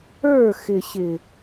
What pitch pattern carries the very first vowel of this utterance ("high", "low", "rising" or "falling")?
falling